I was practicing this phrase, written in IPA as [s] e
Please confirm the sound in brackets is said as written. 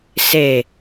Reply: yes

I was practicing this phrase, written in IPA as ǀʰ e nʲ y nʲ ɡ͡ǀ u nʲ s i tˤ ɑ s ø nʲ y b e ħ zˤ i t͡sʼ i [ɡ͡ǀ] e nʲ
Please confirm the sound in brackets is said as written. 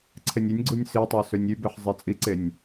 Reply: no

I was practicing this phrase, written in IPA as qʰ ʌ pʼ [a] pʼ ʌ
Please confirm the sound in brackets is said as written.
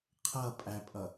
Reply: no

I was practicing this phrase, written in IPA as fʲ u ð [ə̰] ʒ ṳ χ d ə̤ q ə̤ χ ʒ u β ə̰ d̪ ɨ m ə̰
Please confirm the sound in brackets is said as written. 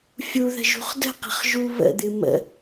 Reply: no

